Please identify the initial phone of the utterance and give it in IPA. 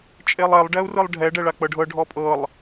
t͡ʃʼ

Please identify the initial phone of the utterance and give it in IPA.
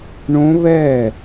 ɳ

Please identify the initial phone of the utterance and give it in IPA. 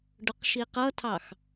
ɖ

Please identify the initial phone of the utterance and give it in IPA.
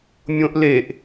mʲ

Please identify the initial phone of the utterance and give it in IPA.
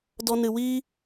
d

